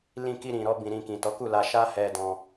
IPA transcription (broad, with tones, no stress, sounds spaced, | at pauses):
l ĩ˧ k i˧ ɾ ĩ˨ ɾ ɔ˧ b ĩ˨ ɾ ĩ˨ k ĩ˨ t ɔ˨˦ k u˦˨ l a˧ ʃ a˦ h ɛ˧ d ɔ̃˧